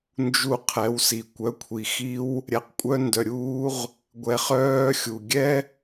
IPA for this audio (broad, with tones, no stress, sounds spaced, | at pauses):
n d͡ʒ u˧ qʰ ɛ˨˦ w s i˨ kʷ œ˨˦ kʷʰ i˨ x i˦ w | ɾʲ ɛ˧ q kʷʼ œ˦ n d œ˧ ɾʲ uː˦ ʁ | ɡʷ ɛ˧ χ œː˦ xʲ u˨ ɡʲ ɛ˦